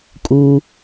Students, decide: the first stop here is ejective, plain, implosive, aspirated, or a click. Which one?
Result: ejective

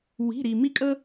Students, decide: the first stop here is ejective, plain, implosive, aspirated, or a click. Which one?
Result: ejective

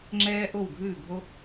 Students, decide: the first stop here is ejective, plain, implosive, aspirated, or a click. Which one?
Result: click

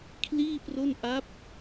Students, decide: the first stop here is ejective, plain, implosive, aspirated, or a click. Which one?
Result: aspirated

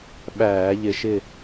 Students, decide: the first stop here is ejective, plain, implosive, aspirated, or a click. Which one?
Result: implosive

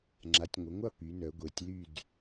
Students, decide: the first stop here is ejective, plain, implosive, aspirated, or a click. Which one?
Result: click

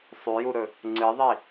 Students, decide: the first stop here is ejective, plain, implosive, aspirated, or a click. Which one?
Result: click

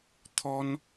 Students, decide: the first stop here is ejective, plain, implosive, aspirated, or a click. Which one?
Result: aspirated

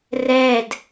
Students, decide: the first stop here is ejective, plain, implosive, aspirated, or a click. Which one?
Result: plain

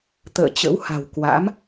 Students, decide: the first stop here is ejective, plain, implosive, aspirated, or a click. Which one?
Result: plain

